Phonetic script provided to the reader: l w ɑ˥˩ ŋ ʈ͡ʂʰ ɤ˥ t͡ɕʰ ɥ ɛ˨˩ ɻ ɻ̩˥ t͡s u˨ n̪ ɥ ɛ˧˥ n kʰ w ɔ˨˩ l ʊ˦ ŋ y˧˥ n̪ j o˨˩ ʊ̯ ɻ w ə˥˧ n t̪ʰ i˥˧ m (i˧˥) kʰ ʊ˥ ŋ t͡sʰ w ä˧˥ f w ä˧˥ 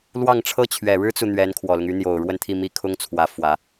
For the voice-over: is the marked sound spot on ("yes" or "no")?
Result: no